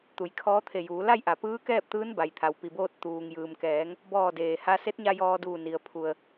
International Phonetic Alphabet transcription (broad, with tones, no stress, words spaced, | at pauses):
t̪u˩˧jkʰɔː˧˥t̪ʰe˧˩juː˩˧ la˥˨jʔa˩ pɯː˧˥kɛː˥˨p̚ t̪ɯː˧˥nba˩jt̪ʰa˩w pi˩boː˧t̚ t̪uː˩ŋjɯː˩mkɛː˩˧ŋ | bɔː˧˩deː˩ha˧ se˧˥t̚ɲa˧ jɔː˧duː˧˩ni˩ə̯ pʰu˩ə̯